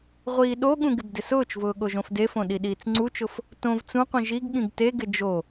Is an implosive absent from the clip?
no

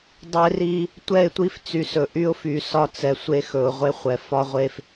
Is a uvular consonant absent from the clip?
no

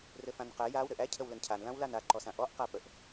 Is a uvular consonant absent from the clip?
no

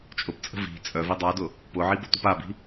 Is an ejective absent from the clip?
no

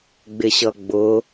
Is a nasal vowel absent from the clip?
yes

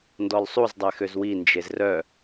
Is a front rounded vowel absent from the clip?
no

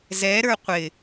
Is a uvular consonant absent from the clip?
no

